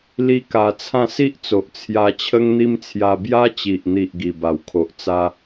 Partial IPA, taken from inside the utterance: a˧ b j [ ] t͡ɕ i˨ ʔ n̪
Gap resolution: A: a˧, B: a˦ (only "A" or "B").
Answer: B